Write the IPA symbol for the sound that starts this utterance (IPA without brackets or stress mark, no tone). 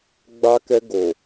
ɡ͡b